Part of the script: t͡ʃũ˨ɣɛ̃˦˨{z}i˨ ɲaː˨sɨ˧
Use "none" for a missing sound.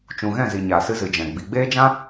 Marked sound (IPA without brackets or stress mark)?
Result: z